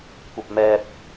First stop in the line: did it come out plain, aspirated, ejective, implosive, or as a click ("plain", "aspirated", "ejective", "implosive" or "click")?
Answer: plain